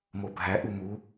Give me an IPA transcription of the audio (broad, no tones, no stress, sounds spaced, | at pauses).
m o bʱ æ ʔ u m u